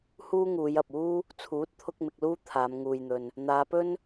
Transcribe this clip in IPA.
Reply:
h uː˥ ŋ uː˨˧ j ɐ˨ p̚ uː˥ | t͡sʰ uː˨˥ t̚ t̪ʰ ʊ˧ k̚ m ɪ˧ k̚ l uː˥ t̪ʰ aː˨˧ m ŋ uː˨ j n̪ ɵ˨ n | n̪ aː˨˧ p ɵ˥ n

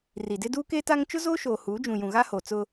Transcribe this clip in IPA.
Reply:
r i˨ d ɪ˦ d uː˦ k eː˦ t a˦ ŋ t͡ʃ ʊ˦ z oː˦ ʃ oː˨ h uː˨˦ d͡ʒ ũ˨ j ũ˨ ɣ a˦ h o˨ t͡s ʊ˦

